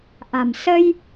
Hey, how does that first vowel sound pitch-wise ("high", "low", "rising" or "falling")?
low